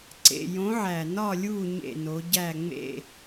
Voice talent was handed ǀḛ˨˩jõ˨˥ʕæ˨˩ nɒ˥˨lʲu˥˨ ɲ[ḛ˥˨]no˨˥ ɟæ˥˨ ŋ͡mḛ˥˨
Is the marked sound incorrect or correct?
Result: correct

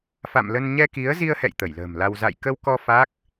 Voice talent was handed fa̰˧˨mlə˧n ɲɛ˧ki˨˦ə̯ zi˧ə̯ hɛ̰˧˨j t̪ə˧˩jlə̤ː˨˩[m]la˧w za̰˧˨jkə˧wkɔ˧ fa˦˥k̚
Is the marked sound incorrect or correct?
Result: correct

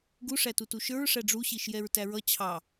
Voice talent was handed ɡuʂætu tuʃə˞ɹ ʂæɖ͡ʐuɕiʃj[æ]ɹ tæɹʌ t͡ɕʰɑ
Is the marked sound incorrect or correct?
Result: incorrect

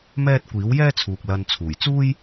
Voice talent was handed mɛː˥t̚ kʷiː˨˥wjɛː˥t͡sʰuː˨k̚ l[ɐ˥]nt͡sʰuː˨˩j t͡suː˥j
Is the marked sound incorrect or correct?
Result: incorrect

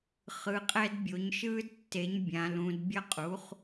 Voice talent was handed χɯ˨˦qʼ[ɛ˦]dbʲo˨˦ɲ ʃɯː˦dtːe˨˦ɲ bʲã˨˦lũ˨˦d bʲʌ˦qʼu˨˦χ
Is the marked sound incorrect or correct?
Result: correct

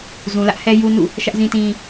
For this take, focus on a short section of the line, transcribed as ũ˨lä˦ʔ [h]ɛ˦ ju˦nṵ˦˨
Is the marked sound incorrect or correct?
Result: correct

